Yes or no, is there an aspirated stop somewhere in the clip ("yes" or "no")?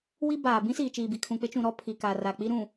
yes